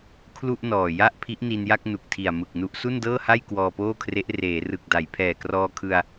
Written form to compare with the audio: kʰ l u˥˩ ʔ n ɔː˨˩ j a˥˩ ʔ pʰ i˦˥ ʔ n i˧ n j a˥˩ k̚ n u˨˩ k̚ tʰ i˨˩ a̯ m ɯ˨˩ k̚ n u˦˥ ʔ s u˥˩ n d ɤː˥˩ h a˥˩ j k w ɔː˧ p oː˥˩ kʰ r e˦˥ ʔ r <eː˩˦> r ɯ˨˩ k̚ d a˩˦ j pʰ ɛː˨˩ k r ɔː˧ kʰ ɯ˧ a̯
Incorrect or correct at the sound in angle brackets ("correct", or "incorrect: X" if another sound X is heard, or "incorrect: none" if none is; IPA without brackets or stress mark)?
correct